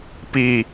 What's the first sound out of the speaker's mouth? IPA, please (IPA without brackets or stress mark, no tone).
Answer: p